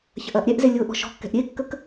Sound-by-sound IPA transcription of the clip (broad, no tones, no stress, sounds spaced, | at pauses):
ç ɐ ʔ ɐː ʔ ɾʲ ɛ ʔ z e lʲ ʊː ʔ ɔ̤ ʃ ɔ̤ kː ɛ̤ ʔ ɾʲ e kː ə k